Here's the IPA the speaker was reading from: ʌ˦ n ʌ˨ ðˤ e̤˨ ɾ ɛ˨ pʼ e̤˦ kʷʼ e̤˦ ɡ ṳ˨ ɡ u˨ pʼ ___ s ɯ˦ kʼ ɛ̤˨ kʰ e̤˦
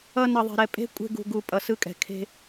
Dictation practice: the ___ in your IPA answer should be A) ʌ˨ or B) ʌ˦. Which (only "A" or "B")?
A